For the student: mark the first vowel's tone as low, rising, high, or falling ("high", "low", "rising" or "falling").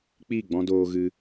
falling